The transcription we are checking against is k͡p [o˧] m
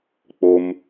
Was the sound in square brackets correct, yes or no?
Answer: yes